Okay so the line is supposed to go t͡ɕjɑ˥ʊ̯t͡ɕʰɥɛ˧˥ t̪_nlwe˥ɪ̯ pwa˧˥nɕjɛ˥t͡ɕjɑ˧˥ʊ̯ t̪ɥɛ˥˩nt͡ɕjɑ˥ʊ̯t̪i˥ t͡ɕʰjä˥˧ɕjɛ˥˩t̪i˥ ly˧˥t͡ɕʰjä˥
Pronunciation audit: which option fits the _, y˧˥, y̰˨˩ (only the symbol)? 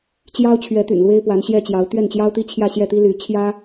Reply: y̰˨˩